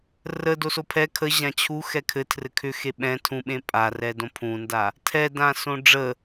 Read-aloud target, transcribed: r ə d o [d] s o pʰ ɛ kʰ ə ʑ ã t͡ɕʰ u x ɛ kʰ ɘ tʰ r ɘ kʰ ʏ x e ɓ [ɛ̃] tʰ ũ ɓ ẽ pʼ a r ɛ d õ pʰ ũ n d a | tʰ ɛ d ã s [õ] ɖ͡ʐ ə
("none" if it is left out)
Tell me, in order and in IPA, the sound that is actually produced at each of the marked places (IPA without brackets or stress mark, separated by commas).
none, ɛ̃, õ